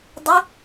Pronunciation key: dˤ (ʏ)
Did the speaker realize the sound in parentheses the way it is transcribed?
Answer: yes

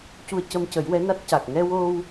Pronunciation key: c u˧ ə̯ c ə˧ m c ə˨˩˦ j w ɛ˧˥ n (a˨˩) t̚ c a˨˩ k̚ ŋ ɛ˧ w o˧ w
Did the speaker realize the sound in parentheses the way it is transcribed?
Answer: no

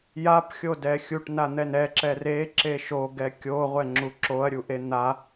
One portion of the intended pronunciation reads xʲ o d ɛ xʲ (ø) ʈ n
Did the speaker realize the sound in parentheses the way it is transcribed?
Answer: no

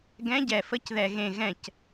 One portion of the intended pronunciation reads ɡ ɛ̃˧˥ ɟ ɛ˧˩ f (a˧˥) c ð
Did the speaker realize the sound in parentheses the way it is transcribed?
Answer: no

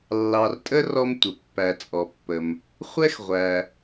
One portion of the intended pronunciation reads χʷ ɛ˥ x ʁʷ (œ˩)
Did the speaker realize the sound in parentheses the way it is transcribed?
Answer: no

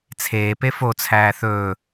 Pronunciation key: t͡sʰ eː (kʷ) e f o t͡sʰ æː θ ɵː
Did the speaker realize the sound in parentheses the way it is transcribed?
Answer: no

